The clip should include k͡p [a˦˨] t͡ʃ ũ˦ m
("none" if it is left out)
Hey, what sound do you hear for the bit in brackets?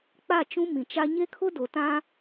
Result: a˦˨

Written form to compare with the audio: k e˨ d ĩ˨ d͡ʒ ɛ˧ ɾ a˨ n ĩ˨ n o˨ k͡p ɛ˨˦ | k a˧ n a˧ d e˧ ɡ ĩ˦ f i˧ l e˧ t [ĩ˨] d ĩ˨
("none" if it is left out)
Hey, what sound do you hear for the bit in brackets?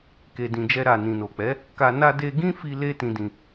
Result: ĩ˨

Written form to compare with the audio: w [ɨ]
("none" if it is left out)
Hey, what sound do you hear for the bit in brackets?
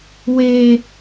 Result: e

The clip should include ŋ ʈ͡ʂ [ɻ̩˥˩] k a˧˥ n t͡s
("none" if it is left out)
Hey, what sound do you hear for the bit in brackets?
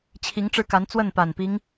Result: ɻ̩˥˩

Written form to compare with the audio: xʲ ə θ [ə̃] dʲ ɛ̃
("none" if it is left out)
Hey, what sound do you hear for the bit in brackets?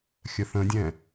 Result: ə̃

